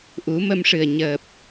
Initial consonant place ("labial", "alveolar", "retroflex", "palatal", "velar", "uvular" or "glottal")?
glottal